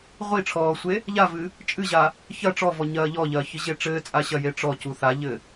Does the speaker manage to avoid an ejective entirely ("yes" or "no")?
no